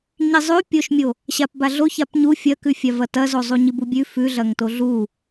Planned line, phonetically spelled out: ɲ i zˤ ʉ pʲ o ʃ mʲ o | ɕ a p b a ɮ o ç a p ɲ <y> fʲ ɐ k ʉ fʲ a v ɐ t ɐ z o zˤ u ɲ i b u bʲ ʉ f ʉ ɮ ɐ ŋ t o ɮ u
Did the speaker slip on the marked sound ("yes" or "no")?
yes